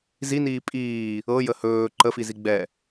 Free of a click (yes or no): no